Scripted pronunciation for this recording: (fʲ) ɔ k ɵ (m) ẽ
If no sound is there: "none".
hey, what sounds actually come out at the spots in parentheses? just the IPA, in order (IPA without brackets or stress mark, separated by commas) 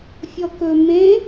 fʲ, m